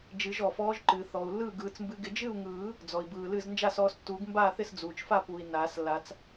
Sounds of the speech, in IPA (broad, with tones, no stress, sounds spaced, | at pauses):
d͡ʒ ɨ˨˩˦ ʒ ɔ˩ f ɔː˨˦ ʒ ǃ ɨː˩ θ ɔː˩ u̯ lː ɯː˥˩ ɡ ɯː˨˩˦ t͡s m b ɨ˨˦ ɡ ɪ˨˦ d͡ʒ ɨ˥˩ u̯ ŋ ɯː˨˩˦ | d͡z ɔ˩ i̯ b ɯː˩ l ɨ˥˩ z n d͡ʒ a˥˩ s ɔː˨˦ s tː uː˨˩˦ ɡ m b aː˥˩ θ ɪ˥˩ s d͡z uː˩ t͡ʃ f a˥˩ p uː˩ i̯ n aː˨˩˦ s lː a˨˩˦ t͡s